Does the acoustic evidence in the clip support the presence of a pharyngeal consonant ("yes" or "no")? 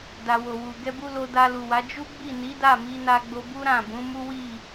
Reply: no